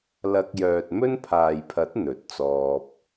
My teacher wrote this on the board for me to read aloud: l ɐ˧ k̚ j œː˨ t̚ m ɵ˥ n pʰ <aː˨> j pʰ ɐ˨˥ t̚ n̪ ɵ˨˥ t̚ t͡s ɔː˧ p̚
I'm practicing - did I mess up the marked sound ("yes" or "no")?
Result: no